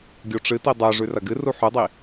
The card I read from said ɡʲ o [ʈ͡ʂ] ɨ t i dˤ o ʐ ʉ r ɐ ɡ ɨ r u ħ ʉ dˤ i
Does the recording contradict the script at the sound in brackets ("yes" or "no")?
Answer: no